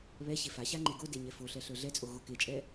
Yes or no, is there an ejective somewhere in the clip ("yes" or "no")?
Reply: yes